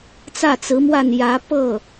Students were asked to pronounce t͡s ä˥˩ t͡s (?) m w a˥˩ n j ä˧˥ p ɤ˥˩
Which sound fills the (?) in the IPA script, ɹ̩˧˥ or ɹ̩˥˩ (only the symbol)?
ɹ̩˧˥